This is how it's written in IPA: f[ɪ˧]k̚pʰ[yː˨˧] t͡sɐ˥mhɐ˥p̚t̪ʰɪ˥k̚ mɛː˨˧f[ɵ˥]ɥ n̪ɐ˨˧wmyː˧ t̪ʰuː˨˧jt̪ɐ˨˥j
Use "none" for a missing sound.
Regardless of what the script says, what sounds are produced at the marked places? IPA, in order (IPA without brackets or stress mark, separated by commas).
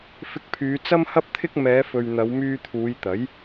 ɪ˧, yː˨˧, ɵ˨